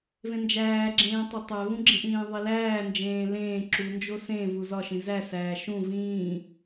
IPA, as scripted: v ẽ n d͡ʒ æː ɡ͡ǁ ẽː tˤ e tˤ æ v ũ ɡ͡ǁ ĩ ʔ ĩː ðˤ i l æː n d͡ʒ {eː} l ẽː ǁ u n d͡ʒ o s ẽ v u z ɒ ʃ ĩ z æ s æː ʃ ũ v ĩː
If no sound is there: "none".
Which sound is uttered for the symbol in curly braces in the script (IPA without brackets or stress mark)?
ẽː